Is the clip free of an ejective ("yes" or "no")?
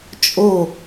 no